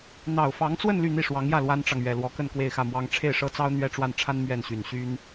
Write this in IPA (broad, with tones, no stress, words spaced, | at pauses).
n̪ɑ˨˩ʊ̯fɑ˧˥ŋt͡swə˥˧n ly˥˧n̪i˥˩ʂwɑ˧˥ŋjä˥˩ lwa˥nʈ͡ʂɑ˨ŋ ɥɛ˨˩lwɔ˧˥kə˥˧n kwe˥˧ɪ̯xä˥˩mwɑ˥ŋ ʈ͡ʂʰe˥˩ɪ̯ʂɤ˥t͡sɑ˥ʊ̯ n̪ɥɛ˥˧ʈ͡ʂwa˥˩n ʈ͡ʂʰa˥n mɥɛ˥˩nɕy˨˩n ɕy˥n